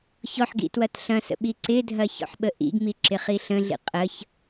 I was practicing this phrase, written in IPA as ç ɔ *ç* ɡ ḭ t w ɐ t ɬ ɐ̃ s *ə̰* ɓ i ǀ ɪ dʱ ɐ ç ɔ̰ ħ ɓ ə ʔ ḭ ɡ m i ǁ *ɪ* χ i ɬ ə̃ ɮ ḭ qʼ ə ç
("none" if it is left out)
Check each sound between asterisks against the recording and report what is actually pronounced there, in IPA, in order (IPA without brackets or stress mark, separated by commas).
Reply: ħ, ə̰, ɪ